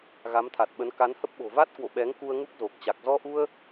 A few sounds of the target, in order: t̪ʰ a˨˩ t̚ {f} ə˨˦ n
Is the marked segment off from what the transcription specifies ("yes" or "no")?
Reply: yes